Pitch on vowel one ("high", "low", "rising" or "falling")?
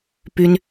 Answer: high